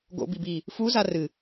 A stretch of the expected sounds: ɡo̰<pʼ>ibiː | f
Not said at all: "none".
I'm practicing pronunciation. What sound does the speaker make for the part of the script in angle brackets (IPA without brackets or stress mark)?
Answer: b